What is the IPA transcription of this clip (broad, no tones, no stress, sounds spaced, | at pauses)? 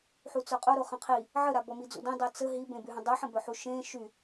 ħ u t͡s œ qʼ o ɾ o χ ə̃ qʰ i | ʕ ə ɾ a b ɔ m i d͡z ṵ d ĩ dˤ i t͡s ə ɦ i b ẽ b y ɦ ə̃ dˤ y ħ ə̃ b œ ħ u ʃ ẽ ʃ y